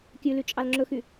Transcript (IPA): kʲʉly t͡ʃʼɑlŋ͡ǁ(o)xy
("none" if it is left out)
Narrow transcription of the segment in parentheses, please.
ɵ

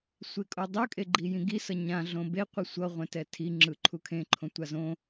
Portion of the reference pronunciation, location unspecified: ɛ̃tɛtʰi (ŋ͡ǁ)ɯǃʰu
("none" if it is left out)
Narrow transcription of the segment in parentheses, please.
ŋ͡ǁ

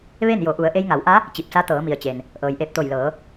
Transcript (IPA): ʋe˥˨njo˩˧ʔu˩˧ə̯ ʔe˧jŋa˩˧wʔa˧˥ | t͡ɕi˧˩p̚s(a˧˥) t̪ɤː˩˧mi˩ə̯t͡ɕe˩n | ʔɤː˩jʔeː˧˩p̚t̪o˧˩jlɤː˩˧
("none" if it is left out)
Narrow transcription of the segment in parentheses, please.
a˧˥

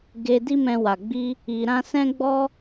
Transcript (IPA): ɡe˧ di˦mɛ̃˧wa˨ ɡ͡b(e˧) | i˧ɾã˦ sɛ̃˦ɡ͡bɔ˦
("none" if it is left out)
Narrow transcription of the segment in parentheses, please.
i˧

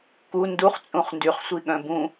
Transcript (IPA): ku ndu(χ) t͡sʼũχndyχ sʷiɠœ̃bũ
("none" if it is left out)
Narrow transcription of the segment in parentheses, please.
χ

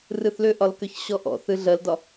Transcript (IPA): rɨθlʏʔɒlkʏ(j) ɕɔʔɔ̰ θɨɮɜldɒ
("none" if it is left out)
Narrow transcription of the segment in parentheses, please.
ç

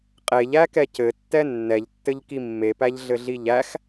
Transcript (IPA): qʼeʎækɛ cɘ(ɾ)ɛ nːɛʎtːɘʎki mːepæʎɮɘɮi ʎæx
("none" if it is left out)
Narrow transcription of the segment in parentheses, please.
tː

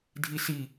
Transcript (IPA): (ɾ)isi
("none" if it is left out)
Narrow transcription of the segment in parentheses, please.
dʱ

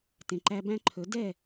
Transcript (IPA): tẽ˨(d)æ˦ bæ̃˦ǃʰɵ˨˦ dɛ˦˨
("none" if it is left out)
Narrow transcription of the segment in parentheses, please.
ǃ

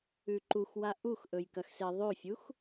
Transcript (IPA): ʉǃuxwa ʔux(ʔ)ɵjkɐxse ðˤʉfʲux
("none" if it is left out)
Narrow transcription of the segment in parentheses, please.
ʔ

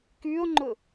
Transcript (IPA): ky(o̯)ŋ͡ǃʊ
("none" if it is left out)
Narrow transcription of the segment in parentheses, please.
o̯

